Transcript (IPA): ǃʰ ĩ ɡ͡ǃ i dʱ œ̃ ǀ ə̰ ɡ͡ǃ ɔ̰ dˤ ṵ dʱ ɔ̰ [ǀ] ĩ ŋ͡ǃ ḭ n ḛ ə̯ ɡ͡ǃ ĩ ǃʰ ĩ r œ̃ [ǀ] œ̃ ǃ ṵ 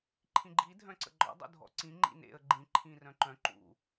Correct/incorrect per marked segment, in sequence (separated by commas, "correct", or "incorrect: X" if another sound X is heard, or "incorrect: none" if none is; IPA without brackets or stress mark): correct, incorrect: ǃ